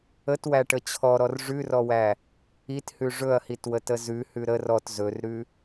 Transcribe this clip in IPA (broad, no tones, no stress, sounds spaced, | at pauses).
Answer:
ə t w æ ʈ ə t͡ɕʰ ɔ ɾ ɔ r ʐ ʉ r ɔ w æ | i t h ʉ ʐ ɵ ɐ̯ h i t w ə t ə z ʉ h ʉ ɾ ə r ɔ t z ɵ r ɾ ʉ